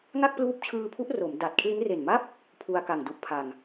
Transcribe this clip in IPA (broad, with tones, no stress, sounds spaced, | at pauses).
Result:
ŋ a˥˩ k̚ p l uː˦˥ p̚ t͡ɕʰ ɯː˧ pʰ u˦˥ ʔ r o˩˦ m d a˨˩ t̚ kʰ l i˦˥ n r e˨˩ n m a˥˩ p̚ | pʰ u˧ a̯ k a˨˩ ŋ d u˨˩ ʔ pʰ a˨˩ ŋ